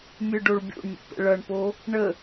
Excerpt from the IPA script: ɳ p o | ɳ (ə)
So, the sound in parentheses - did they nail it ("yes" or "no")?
yes